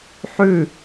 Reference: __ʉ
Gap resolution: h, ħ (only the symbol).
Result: ħ